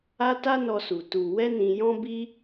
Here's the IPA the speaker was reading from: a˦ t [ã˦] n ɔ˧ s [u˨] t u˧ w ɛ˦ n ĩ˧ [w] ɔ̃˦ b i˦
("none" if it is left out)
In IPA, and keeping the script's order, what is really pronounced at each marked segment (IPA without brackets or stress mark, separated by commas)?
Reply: a˦, u˨, j